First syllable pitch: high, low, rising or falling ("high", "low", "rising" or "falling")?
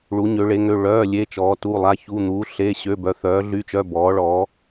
rising